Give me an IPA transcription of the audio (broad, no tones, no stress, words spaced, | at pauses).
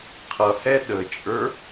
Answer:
qʰʌhɛ ɗət͡ʃʼə˞